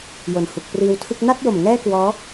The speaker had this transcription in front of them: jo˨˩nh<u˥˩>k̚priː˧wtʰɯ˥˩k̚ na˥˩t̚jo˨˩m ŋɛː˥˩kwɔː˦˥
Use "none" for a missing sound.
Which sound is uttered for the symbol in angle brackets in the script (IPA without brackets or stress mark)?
u˨˩